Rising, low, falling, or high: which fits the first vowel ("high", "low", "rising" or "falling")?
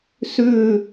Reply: low